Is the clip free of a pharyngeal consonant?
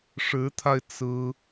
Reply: yes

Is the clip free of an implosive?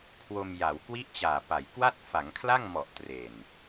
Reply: yes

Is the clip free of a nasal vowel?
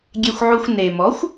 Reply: yes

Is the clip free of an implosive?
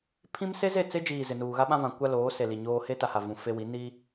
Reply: no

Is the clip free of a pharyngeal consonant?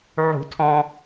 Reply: no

